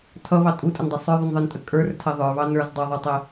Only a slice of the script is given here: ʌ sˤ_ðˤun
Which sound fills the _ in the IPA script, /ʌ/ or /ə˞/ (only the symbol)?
ə˞